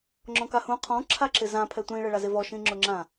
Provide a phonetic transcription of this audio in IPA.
ŋ͡ǁ ɔ̃ k a h ũ qʰ ɔ̃ ǁʰ a ǁ ɪ z ã pʰ ɛ tʷ ĩ ɭ ɛ ɭ a z ɪ v ɔ ʃ ĩ ŋ͡ǁ ʊ ŋ͡ǁ ã

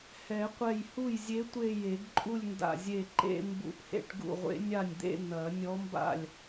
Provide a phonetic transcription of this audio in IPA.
h ɛ˨˩˦ qʷ ɛ˧˩ j h u˥˩ j zʲ e˧˥ tʷ e˥˧ j e˨˩˦ ɡ ǃʼ u˥˧ lʲ n d a̰˧˩ zʲ e˧˩ ǃ ḛ˥˧ m b ṵ˧˩ ʔ h ḛ˥˧ ʈ ɡ ṵ˥˩ ʁʷ ḛ˧˥ nʲ a˥˩ nʲ d̪ ḛ˥˧ n̪ ɐ˨˩˦ nʲ ɔ˧˥ m b a̰˥˩ lʲ

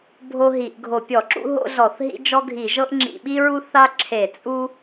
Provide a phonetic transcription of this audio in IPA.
bʱ o˥ ɦ i˧˩˧ ʔ ɡʱ o˧˩˧ pʲ ɔ˧˩˧ ǁ ṵ˥ ɦ o̰˥ ɮ ɔ˧˩˧ θ ɦ ḭ˥ d͡ʒ ɔ˥ ɡʱ i˧˩˧ ʒ ɤ˥ ʔ ŋ͡ǁ ḭ˧˩˧ ɓ i˥ ɹ u˥ θ a˥ ǁʰ e˧˩˧ t͡sʼ u˥

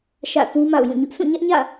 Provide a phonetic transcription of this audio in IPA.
ʃ ä̰˦˨ θ ũ˦ m a̰˦˨ ʊ̯ j ũ˦˨ ɲ ʊ˦ ʔ sʰ ũ˦˨ ɲ ä˦ ʔ ɲ ä̰˦˨

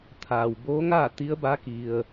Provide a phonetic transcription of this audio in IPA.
t̪ʰ aː˩ w b oː˧˥ ŋ aː˥˨ t̪ i˧˥ ə̯ b a˧˥ k i˩ ə̯

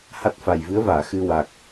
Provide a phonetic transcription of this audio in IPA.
h a˦˥ t̚ f a˨˩ j v ɨ˧˥ ə̯ v aː˨˩˨ x ɨ˧ w a˨˩ k̚

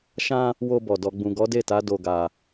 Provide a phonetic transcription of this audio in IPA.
ʃ ã˧ | w o˧ b ɔ˨ d ɔ˨ ɡ͡b ũ˨ ɡ ɔ˨˦ d e˦˨ t a˨˦ d o˧ ɡ a˧

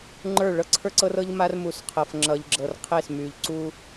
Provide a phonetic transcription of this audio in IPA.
ŋ͡ǃ ə˞˦˨ ɭ ɤ˦ ǀʰ ə˞˦ ǀ ɤ˦ r ɤ˦ ʎ m a˦ r m u˨ s qʰ ɤ˨ f ŋ͡ǁ ʌ˨ ʎ ɡ͡ǁ ɤ˨ r qʰ e˦˨ s m y˨ ʎ ǀ u˦

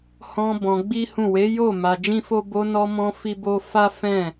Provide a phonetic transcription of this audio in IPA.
h ɔ̃˧ b ɔ̃˧ ɡ͡b i˦ h ũ˦˨ w e˨˦ j o˦˨ m a˧ d͡ʒ ĩ˦ f o˦ b o˧ n ɔ˧ m ɔ̃˧ f i˦ b o˦ f a˦ f ɛ̃˦˨

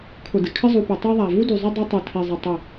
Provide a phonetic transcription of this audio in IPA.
kʰ ʊ˨ d ɪ˨ kʰ ɪ˦ zˤ u˨ p ɛ˨ tˤ ɛ˦ ðˤ a˨ v u˦ d y˨ zˤ ʏ˦ dˤ i˦ tˤ y˨ tʰ i˨ zˤ ə˨ tˤ ə˦˨

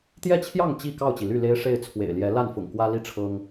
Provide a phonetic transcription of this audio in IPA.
t̪ j ɛ˥˨ t͡ɕʰ j ɑ˥˨ ŋ t͡ɕ i˥˨ k ɑ˥˨ ʊ̯ t͡ɕ i˩ l y˥˨ l e˦ ɪ̯ ʂ e˥˨ ɪ̯ t͡sʰ w ḛ˨˩ ɪ̯ l j ɛ˨˦ l a˥˨ n f ʊ̰˨˩ ŋ k w ä˦ l i˥˨ ʈ͡ʂʰ ɤ˦ ŋ

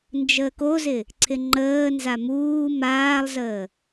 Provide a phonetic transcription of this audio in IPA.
n d͡ʒ əː k o z ɪ | ǀʰ ɪ ŋ͡ǃ əː n z a m uː m aː lˠ z əː

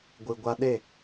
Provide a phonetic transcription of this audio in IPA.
ɡʷ ɨ˨ ɡʷ a˧ ɗ e˦˨

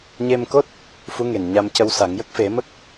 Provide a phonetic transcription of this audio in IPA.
ɲ e˧ m k o˦˥ t̚ | f u˧˥ ŋ e˨˩ n ɲ a˧ m c ə˧ w s a˨˩˦ ŋ j ə˦˥ k̚ f e˨˩˦ m ə˦˥ k̚

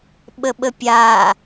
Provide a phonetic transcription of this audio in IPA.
ɓ ə ɓ ə pʲ a

